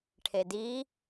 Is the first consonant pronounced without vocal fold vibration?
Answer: yes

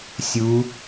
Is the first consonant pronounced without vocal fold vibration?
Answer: yes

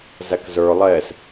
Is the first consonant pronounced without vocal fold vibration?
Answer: no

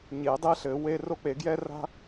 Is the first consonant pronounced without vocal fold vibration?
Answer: no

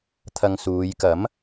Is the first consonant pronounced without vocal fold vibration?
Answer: yes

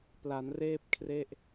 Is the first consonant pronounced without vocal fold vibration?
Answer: yes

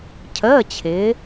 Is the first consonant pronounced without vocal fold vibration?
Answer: yes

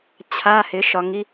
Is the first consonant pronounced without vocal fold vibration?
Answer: yes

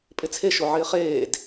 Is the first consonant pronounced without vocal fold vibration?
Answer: yes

